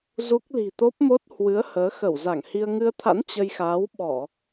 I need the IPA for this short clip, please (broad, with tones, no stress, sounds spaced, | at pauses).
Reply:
z u˦˥ k̚ l i̤˨˩ t̪ o˦˥ p̚ m o˦˥ t̚ h w ɨ˨˦ ə̯ h əː˨˦ x ə˧˩ w z a˧˩ ŋ h i˧ ə̯ ŋ ɨ˧ ə̯ t̪ʰ a̰˧˥ n t͡ɕ ə˧ j x aː˨˦ w ɓ ɔ˧˩˨